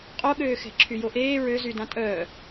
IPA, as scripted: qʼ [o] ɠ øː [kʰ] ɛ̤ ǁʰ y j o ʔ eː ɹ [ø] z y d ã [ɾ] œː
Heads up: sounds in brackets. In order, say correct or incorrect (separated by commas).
correct, incorrect, correct, incorrect